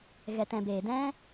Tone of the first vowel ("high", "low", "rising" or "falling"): low